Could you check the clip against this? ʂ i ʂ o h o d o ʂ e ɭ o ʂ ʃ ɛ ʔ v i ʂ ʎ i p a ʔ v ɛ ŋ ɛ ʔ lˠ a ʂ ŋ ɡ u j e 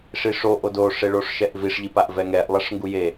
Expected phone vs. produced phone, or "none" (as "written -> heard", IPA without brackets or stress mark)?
h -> ʔ